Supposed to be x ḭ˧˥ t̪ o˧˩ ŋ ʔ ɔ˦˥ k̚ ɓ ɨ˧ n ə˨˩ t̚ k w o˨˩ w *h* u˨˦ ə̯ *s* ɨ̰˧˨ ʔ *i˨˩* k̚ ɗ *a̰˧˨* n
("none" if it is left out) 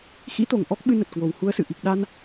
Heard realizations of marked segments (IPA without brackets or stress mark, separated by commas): h, s, i˨˩, a˧